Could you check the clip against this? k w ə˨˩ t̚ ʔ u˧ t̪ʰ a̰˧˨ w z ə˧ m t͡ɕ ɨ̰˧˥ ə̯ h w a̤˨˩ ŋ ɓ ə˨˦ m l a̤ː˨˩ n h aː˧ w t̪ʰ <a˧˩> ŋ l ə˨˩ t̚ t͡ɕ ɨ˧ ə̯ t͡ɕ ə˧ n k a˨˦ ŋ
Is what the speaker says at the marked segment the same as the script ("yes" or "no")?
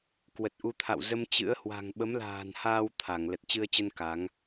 yes